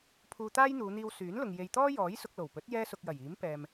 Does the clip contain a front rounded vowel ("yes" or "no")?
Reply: yes